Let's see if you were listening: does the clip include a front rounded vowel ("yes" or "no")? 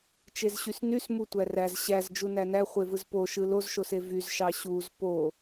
yes